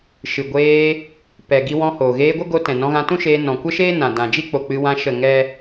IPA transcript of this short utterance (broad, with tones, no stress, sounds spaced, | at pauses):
ʃ ɨ˨ ɡʷ eː˧ | p ɛ˨ ɡ i˧ w ɔ̃˧ h oː˨ ɣ eː˧ ɡʷ ə˦ ɡ o˧ t ɛ̃˨ n ɔ̃˧ ɣ ã˧ t ũ˦ ʃ eː˧ n ɔ̃˨ kʷ ə˦ ʃ eː˦ n ã˨ d ã˨ d͡ʒ i˦ k͡p o˨ k͡p ɨ˧ w ã˧ ʃ ə˦˨ ŋ ɛ˦